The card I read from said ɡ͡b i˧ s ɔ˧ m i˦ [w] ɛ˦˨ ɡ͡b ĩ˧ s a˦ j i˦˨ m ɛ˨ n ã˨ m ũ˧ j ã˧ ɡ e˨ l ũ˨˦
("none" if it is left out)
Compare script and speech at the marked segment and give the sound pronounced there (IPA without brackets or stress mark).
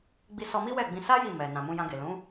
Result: w